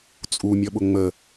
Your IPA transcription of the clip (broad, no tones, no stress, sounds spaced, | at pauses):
t͡sʼ u mʲ ʌ ɓ ʊ ŋ͡m ə